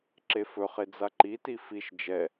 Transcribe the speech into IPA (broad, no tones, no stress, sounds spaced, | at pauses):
ǁ e f ɵ χ e d͡z a ǃ i t i f i ʃ d͡ʒ ɛ